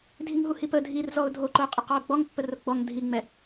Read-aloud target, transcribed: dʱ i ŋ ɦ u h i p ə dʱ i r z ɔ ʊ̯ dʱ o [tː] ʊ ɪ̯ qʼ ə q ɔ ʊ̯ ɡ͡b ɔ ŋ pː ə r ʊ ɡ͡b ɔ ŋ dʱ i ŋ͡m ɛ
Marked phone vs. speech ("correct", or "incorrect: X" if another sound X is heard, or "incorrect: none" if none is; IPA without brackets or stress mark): incorrect: ǃ